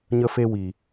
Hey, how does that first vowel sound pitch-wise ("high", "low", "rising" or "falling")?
high